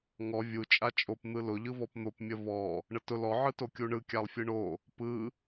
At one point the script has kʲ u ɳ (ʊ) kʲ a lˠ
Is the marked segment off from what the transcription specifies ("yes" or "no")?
yes